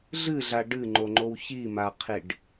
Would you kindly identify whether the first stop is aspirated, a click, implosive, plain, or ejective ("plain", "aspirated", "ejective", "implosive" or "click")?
plain